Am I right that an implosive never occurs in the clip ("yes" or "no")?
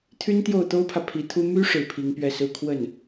yes